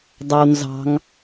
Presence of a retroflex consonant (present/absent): absent